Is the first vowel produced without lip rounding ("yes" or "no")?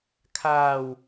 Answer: yes